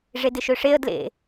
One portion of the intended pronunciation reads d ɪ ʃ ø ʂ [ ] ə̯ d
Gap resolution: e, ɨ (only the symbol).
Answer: e